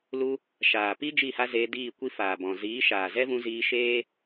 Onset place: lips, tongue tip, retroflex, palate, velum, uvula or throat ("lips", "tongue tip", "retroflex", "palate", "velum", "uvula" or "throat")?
tongue tip